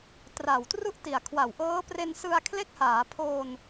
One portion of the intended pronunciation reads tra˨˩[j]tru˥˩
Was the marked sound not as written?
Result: yes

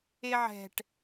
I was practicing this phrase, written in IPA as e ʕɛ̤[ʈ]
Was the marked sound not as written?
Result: no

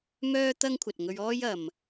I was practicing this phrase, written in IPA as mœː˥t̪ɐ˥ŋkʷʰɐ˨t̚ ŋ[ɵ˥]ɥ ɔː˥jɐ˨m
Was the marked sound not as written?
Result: yes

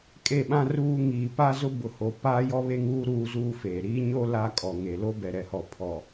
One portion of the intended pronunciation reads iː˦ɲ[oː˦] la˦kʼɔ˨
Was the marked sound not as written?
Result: yes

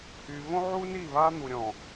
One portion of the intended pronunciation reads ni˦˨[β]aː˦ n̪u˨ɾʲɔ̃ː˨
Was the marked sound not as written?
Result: no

